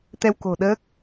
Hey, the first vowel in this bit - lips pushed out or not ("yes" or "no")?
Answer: no